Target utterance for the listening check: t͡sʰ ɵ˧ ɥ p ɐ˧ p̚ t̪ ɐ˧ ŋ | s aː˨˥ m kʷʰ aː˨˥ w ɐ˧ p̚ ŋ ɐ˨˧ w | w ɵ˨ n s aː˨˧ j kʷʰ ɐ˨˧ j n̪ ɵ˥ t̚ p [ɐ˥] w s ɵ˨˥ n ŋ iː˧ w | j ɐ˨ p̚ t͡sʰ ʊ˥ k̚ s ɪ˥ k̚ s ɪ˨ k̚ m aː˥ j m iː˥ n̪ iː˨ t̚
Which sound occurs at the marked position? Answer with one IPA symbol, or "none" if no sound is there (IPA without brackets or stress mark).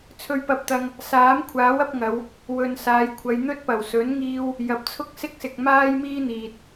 ɐ˨˩